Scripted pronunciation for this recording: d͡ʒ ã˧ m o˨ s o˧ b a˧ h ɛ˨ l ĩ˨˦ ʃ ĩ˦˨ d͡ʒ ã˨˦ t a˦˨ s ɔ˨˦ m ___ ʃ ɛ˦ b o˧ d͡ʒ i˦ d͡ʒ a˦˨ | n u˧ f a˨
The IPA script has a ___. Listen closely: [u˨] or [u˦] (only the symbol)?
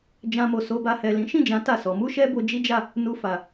u˦